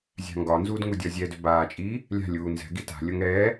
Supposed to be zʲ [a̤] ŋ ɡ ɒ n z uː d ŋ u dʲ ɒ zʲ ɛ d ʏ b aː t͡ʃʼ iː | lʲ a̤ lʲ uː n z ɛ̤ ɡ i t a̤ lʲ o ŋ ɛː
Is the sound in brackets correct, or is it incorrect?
correct